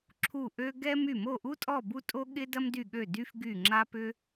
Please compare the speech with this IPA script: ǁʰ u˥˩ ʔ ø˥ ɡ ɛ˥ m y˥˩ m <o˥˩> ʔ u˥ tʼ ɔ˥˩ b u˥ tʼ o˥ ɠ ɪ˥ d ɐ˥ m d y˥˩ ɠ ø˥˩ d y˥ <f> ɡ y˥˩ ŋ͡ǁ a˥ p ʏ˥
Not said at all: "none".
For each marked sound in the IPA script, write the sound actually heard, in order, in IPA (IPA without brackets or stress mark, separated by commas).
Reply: o˥˩, f